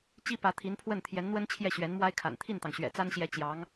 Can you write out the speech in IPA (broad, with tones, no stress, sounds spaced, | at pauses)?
t͡ɕ i˥ p ä˧˥ t̪ʰ i˧˥ n pʰ w ə˥˩ n t̪ʰ j ɛ˧˥ n n̪ w ə˥ n t͡ɕʰ j ɛ˥˩ ɕ ɥ ɛ˧˥ n m w a˥ ɪ̯ kʰ a̰˨˩ n t̪ʰ i˥˩ n t̪ ɑ˩ ŋ ɕ ɥ ɛ̰˨˩ t͡s a˥ n ɕ j ɛ˧˥ t͡ɕ j ɑ˧˥ ŋ